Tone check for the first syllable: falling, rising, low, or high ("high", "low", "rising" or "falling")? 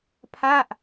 falling